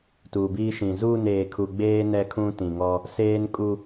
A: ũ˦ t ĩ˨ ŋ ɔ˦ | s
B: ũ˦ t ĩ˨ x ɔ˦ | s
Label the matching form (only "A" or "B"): A